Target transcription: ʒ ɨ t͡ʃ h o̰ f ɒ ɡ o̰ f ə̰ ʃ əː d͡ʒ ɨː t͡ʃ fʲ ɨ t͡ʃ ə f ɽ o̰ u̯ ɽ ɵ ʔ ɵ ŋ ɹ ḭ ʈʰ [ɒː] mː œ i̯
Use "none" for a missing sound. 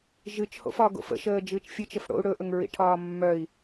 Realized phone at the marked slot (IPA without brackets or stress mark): ɒː